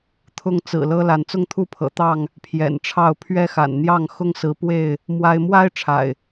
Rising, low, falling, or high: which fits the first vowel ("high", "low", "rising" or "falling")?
high